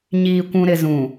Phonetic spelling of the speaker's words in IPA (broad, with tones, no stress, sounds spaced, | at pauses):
ɲ iː˨ kʷ ũ˨ ɾ ɪ˨ z ũ˨